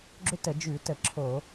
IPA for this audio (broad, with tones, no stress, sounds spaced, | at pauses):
ɡ͡ǁ ʏ˥ t ə˧˩˧ d͡ʒ ʉ˧˩˧ t ə˧˩˧ ǁʰ o˧˩˧